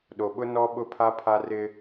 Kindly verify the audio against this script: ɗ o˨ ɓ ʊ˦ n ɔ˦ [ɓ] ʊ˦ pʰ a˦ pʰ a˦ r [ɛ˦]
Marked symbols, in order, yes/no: yes, no

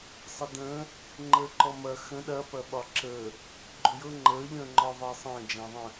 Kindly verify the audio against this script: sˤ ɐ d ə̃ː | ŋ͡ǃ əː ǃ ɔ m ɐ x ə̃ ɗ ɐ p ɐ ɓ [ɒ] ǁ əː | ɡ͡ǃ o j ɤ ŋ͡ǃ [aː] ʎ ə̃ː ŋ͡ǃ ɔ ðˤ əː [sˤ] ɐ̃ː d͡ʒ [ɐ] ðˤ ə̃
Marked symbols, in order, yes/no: yes, no, yes, no

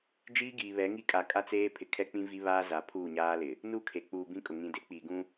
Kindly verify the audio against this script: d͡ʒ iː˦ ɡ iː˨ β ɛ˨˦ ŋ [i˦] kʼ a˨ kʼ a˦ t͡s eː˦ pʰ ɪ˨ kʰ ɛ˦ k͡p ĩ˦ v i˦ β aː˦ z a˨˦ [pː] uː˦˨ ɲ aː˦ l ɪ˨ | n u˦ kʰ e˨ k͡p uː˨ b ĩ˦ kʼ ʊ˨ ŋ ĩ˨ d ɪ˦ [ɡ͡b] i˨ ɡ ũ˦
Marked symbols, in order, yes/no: yes, no, no

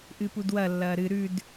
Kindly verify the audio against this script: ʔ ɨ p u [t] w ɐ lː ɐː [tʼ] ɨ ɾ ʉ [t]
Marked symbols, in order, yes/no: no, no, no

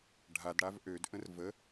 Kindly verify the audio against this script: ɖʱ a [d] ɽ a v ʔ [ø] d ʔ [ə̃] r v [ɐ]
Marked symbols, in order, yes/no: yes, yes, yes, no

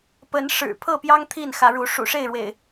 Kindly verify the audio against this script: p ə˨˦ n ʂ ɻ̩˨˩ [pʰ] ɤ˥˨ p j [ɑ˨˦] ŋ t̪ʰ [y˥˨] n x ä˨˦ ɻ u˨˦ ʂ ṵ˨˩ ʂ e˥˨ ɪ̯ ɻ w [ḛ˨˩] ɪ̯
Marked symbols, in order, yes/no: yes, no, no, yes

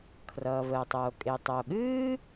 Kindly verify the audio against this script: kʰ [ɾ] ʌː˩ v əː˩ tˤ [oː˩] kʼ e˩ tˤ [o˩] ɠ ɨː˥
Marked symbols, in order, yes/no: no, yes, yes

